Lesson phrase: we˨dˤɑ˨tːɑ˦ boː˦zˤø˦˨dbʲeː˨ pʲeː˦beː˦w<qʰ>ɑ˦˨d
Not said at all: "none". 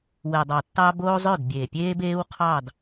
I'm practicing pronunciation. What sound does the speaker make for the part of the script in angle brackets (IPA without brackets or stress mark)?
qʰ